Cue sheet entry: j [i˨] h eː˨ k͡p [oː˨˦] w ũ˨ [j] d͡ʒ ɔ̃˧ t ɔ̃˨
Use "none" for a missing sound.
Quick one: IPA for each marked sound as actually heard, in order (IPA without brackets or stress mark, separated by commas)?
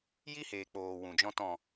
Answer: i˦, oː˨, none